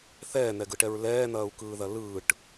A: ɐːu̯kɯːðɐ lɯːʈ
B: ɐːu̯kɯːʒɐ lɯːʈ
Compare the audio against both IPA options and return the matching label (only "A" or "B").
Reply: A